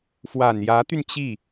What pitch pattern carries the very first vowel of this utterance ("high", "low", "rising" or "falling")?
low